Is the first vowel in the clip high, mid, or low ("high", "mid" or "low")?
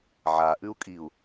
low